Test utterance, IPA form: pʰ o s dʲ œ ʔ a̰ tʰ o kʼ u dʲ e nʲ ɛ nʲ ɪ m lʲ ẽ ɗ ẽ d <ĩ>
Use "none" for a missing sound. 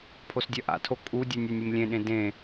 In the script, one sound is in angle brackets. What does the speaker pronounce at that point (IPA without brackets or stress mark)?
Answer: ẽ